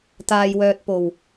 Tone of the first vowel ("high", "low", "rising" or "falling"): low